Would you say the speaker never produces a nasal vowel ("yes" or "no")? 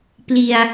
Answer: yes